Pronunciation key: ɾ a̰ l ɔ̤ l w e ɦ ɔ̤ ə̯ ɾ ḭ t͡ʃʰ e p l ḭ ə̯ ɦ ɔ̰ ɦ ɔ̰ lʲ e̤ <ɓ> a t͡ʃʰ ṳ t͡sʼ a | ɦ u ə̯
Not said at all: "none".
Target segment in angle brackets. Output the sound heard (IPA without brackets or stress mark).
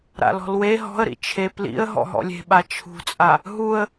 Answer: ɓ